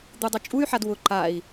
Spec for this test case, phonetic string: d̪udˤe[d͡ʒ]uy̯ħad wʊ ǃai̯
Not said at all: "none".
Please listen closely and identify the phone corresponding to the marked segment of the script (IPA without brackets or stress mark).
t͡ʃʼ